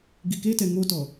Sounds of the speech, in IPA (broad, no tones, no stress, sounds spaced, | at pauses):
ɡ i k e t ɛ ŋ o t ɔ